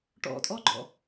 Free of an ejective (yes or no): no